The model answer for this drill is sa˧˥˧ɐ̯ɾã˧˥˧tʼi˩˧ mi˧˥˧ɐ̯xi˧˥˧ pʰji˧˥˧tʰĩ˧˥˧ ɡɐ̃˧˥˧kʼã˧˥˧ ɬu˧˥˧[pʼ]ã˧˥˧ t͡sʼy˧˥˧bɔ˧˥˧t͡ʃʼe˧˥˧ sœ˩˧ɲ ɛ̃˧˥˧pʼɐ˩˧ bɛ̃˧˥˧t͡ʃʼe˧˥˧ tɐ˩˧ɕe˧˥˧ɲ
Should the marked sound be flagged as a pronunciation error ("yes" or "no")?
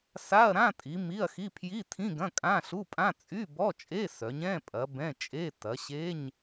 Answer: no